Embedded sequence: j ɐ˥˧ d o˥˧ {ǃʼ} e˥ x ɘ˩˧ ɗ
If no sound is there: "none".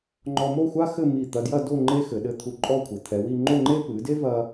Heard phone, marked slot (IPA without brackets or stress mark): ŋ͡ǃ